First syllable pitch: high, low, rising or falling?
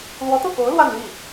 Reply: rising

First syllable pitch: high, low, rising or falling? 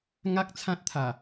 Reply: high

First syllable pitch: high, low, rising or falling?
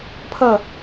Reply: falling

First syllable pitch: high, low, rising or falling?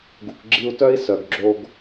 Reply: low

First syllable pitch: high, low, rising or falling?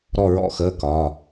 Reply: falling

